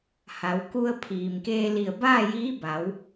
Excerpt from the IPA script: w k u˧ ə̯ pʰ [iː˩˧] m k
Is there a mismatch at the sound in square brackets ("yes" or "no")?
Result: yes